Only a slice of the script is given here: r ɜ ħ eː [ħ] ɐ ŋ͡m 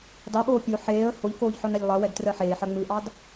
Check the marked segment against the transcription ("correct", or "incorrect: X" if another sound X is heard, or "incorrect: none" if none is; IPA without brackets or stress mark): correct